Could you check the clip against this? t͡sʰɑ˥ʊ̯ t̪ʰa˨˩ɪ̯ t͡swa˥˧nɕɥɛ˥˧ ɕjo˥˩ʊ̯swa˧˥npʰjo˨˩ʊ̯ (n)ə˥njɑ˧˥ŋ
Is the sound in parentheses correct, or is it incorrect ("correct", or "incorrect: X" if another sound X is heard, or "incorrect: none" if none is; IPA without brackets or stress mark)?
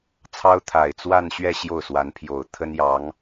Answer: incorrect: t̪ʰ